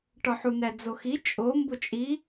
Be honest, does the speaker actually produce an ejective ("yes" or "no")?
yes